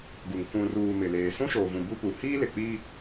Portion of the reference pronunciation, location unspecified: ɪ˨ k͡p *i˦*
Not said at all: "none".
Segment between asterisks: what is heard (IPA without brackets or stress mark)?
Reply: i˦